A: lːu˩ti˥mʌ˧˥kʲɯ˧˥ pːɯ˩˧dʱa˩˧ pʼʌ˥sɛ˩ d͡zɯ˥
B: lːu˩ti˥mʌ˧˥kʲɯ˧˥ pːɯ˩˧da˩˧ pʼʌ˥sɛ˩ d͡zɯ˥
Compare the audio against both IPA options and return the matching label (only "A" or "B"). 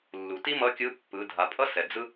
A